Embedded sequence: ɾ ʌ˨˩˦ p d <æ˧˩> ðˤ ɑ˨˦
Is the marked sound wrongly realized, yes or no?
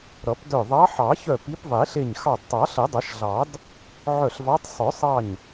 yes